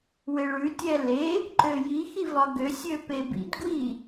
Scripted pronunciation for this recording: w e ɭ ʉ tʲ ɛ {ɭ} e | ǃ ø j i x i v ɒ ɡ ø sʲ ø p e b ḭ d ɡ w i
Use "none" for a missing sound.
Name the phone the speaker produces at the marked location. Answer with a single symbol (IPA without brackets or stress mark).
l